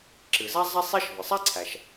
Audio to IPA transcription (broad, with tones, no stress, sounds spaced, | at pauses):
ǁ ɨ˩ z a˥ zˤ a˥ sˤ i˥ ʃ v ɪ˩ sˤ a˥ ǀʰ æ˩ ʃ